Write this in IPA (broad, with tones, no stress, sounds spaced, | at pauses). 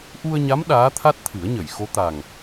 ʔ u˧ ə̯ ɲ a˧˥ m ɗ aː˧˥ t̪ʰ a˦˥ t̚ t̪ʰ ɨ˨˩˦ ə̯ ɲ ə˨˩˨ j x o˧˥ t̪ a˨˩ ŋ